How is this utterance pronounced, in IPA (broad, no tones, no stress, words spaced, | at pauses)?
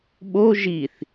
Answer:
ɓo ʒiθ